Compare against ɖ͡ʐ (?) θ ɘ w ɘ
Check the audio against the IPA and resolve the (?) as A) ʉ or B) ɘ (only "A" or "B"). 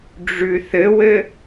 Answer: A